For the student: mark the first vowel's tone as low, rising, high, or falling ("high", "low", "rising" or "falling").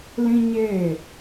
high